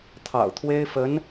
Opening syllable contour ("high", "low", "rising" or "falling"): low